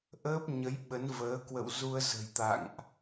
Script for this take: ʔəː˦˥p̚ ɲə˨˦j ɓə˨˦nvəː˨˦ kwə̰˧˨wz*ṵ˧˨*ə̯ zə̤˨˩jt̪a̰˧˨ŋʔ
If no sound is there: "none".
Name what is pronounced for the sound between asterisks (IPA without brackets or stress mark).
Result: u˧